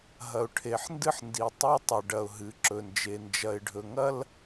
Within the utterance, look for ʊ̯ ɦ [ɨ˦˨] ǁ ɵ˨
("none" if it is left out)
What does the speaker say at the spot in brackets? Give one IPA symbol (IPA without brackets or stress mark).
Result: ɨ˨˦